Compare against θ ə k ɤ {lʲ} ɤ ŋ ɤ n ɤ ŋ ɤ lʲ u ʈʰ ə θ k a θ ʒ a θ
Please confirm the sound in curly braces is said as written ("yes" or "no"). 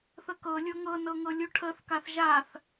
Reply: yes